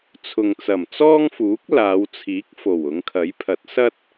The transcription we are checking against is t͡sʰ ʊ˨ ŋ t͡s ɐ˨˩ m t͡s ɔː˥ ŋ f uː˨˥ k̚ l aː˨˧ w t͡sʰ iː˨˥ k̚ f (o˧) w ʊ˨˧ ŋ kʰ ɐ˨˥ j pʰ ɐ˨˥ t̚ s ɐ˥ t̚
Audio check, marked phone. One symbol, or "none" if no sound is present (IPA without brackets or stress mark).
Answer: o˨˩